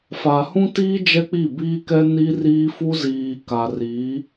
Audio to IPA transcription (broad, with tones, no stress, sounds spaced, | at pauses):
f a˨ h ũ˦ t iː˦ d͡ʒ ɛ˦ k͡p i˦˨ b iː˦ k ɛ˦ n i˦ r iː˦ f u˦ z iː˨ k a˨ r i˨˦